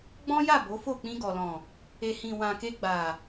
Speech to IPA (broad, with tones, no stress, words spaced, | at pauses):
ɡ͡bɔ̃˦ja˦˨ bo˨˦fo˦˨ k͡pĩ˧ɡɔ˨lɔ̃˨ | e˨hĩ˨wã˨ke˧ ɡ͡ba˨